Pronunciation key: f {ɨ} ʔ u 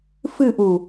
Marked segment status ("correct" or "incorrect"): correct